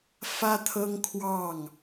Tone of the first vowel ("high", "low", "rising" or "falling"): high